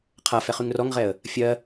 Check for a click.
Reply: absent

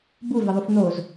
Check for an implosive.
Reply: absent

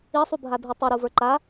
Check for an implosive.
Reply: absent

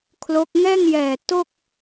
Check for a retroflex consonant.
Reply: absent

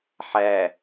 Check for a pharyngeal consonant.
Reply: present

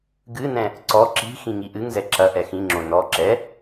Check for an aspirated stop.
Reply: absent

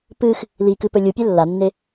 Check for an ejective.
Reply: absent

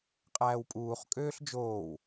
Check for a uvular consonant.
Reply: present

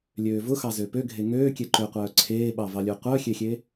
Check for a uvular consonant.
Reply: present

